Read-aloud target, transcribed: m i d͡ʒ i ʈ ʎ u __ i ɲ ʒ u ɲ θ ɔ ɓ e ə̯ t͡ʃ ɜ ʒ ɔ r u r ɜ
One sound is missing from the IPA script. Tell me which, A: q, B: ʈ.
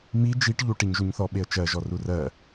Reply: B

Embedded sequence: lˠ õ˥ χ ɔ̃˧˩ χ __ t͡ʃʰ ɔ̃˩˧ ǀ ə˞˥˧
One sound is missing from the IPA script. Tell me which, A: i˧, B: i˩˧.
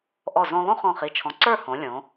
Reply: B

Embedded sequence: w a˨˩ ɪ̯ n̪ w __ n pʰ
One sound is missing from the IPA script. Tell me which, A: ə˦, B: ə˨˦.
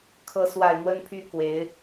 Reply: A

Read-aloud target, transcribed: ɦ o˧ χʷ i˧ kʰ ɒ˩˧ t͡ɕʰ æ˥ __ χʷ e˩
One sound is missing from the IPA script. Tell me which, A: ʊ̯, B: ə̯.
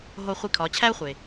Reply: A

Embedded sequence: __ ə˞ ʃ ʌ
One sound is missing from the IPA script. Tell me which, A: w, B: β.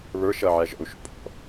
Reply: B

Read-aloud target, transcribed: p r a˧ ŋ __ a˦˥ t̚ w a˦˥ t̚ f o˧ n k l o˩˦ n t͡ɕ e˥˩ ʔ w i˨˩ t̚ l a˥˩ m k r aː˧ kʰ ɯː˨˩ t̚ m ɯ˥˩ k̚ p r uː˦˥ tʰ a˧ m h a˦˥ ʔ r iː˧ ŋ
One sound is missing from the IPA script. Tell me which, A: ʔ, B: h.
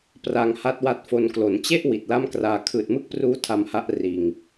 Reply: B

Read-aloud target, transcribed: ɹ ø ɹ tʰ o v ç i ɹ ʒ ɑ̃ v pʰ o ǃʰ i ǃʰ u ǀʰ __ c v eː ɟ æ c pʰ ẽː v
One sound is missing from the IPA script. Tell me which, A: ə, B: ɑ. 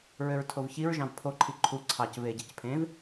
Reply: B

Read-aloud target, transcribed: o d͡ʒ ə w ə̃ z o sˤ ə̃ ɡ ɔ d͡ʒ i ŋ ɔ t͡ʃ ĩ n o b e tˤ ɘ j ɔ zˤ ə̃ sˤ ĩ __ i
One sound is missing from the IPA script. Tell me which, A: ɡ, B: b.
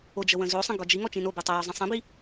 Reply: B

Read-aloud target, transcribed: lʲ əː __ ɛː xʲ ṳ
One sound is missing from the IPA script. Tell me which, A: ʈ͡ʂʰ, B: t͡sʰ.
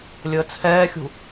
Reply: B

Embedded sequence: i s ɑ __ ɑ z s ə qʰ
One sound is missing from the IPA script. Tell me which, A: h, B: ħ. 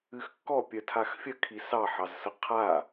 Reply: B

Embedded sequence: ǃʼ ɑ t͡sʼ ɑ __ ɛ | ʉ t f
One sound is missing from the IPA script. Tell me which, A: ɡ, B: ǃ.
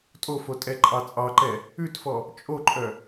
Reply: B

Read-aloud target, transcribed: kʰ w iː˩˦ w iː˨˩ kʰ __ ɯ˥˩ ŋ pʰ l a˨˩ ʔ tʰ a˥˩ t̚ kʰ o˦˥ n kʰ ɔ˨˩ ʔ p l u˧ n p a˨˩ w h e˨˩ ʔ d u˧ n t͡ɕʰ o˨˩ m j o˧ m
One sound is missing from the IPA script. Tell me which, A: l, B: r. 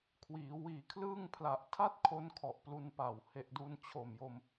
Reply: A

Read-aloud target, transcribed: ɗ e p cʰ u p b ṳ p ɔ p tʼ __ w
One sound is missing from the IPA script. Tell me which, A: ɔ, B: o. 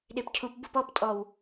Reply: A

